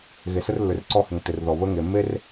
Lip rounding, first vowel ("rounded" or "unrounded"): unrounded